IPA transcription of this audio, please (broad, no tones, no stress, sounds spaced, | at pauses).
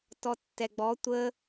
t ɔ tː ɛ ɡ͡b ɔ tʷ ə